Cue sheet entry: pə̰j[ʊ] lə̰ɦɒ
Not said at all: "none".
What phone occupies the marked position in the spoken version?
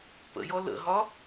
ɔ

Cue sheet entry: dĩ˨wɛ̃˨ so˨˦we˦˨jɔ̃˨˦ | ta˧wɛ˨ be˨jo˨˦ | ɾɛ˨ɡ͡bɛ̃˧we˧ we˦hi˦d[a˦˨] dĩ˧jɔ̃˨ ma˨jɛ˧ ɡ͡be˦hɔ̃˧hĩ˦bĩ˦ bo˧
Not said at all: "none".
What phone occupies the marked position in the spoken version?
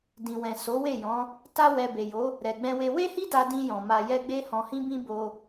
a˧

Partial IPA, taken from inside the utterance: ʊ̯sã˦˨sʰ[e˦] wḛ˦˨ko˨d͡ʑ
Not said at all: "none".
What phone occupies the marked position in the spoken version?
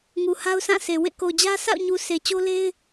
e˨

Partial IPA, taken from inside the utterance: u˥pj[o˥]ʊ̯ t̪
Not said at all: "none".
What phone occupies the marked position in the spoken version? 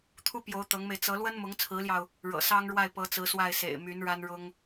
o˧˥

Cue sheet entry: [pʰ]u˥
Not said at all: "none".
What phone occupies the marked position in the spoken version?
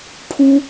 pʰ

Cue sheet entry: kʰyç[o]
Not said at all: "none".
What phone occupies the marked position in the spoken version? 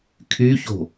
o̤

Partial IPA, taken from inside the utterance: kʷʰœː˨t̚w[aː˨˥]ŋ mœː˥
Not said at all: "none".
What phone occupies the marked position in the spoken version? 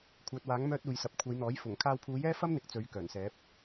aː˨˥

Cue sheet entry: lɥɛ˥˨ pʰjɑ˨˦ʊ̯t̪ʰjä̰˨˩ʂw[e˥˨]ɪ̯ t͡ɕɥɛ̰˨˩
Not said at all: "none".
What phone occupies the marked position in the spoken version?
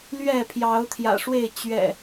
e˥˨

